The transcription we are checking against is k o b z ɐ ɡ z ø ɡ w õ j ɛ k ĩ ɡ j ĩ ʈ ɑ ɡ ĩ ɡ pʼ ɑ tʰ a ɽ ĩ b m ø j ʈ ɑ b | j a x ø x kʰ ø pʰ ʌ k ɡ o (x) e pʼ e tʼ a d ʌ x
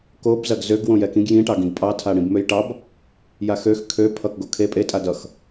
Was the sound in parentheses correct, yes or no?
no